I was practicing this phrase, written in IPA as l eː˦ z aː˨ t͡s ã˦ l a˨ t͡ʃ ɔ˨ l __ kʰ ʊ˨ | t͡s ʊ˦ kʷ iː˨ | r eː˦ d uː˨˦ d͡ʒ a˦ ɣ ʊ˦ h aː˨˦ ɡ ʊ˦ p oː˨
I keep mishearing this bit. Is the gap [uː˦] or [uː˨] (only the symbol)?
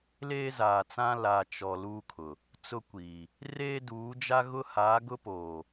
uː˦